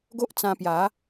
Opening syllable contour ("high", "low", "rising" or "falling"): high